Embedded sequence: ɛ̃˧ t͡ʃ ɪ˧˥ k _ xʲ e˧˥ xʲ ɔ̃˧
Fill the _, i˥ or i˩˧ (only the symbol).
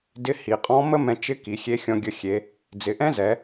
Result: i˩˧